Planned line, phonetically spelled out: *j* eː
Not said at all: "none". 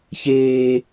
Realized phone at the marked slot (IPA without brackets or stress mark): ç